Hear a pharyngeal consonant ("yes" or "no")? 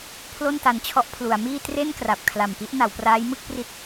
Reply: no